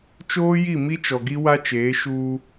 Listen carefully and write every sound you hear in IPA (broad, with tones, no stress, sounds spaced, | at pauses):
t͡ʃ oː˦ j i˦˨ m i˦ t͡ʃ ɔ˨ ɡ i˦ w a˦ t͡ʃ eː˨˦ ʃ uː˦